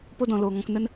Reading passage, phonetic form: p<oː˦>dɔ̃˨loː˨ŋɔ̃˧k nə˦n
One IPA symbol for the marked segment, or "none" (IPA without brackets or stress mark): o˦